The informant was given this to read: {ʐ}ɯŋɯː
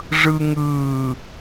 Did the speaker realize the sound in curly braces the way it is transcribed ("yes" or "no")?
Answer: yes